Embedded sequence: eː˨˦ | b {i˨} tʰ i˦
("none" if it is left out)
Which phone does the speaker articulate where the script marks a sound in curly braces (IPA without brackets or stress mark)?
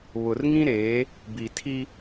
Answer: i˨